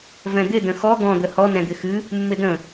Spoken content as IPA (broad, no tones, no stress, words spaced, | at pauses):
vɛ̃d̪ɪ də̃xɔ ɡɔ̃ d̪əhɔ nɛ̃d̪ɪxɨ | mːɪdə̃